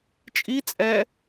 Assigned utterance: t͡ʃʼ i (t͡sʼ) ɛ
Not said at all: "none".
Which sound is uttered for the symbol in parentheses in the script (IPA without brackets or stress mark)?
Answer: t͡sʼ